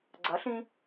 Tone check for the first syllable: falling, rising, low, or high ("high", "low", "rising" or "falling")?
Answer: rising